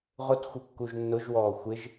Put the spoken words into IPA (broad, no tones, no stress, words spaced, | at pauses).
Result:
ʁʊtxʷɪ kːuʒnːʊʒwɔː xʷɪʒ